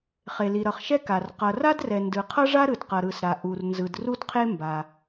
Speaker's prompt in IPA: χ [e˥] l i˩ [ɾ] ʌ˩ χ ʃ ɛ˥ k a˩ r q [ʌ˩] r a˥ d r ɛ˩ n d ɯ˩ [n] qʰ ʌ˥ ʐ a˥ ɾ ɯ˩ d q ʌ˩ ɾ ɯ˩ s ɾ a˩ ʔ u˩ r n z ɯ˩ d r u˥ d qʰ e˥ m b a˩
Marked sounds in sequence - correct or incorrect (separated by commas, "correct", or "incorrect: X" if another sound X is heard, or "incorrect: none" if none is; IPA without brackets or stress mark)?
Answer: incorrect: e˩, correct, correct, incorrect: none